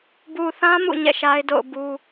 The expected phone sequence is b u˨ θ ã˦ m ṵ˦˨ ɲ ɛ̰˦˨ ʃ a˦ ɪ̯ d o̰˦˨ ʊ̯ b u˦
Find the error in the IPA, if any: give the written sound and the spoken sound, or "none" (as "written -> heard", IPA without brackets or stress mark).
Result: none